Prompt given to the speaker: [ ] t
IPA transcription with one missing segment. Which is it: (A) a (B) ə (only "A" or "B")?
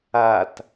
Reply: A